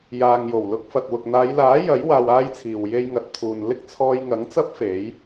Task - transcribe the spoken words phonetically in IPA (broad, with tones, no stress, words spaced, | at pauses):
jaː˨ŋ jo˨˩wlʊ˧k̚fɐ˨t̚wʊ˨k̚ n̪aː˨˧jlaː˨˥ jɐ˨˥j waː˧waː˥jt͡sʰiː˨w je˧jŋɐ˨t̚t̪ʰuː˨n lɪ˥k̚t͡sʰɔː˧jŋɐ˨˥ŋt͡sɐ˥p̚ fe˨˥j